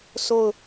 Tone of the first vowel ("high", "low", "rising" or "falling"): falling